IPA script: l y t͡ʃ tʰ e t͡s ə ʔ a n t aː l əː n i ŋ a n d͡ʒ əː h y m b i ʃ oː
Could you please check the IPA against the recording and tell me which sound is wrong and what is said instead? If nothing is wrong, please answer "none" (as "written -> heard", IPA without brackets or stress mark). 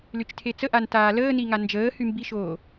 none